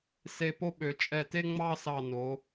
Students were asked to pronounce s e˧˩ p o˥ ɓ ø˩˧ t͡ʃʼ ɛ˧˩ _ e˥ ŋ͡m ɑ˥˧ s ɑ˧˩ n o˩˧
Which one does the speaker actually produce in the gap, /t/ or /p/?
t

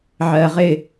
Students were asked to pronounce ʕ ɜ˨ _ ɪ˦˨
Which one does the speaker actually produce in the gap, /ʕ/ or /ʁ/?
ʁ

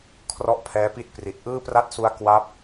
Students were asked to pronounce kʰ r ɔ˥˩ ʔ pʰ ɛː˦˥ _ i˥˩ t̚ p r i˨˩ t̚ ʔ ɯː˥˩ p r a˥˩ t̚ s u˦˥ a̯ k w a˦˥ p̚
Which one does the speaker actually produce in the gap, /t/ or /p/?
p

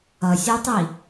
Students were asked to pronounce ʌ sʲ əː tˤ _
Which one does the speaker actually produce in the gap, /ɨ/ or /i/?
i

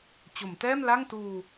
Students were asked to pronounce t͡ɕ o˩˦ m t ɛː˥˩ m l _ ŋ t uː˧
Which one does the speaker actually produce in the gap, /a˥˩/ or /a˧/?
a˥˩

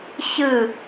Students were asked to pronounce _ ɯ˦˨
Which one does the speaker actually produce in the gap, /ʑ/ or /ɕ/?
ɕ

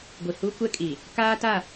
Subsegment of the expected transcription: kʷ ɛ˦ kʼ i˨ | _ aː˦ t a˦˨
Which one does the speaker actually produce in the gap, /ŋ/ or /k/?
k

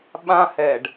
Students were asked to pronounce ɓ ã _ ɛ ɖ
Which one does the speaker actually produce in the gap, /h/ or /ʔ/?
h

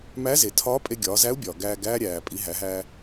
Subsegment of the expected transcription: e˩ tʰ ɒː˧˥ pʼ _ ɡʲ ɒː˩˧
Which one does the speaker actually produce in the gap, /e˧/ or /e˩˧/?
e˧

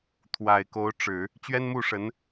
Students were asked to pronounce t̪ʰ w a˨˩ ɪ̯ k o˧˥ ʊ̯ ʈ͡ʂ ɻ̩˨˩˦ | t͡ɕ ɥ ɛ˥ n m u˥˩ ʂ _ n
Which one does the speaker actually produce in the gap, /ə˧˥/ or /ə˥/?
ə˧˥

